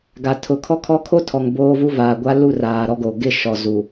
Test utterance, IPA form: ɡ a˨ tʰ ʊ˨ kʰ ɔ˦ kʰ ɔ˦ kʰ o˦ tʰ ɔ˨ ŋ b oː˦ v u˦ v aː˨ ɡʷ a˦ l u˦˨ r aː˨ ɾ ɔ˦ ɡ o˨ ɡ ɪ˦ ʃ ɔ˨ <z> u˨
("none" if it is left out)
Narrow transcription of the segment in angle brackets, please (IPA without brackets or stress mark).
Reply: z